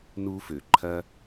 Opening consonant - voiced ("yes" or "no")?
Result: yes